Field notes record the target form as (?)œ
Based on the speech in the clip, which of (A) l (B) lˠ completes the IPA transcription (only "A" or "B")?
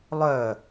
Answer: B